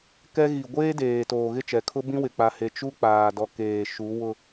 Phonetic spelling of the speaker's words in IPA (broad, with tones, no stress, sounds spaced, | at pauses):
k ɛ˦ ɣ i˨ ɡʷ eː˦ d eː˨ t oː˨ ɣ ɪ˦˨ t͡ʃ ɛ˨ kʰ ʊ˦ b ĩ˦ w ɪ˨ k͡p a˨ h e˨ t͡ʃ u˦ k͡p aː˨ d ɔ˨ k eː˨ ʃ u˨˦ w ʊ˦